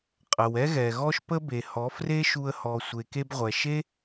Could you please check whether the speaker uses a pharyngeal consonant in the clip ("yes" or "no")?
no